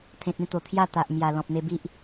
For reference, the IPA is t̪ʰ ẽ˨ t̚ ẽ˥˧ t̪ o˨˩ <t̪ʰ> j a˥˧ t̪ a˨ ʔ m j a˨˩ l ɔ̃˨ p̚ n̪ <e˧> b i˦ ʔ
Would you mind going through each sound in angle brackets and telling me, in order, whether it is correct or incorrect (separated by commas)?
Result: correct, correct